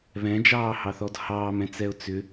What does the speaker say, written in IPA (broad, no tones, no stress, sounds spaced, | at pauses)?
β ɛ̃ d͡ʒ ɑː h ɑ θ ɔ d h ɑː m ɛ̃ t͡s ɛ ʊ̯ t͡s ʏ